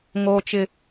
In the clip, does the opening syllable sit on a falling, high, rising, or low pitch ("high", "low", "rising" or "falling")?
high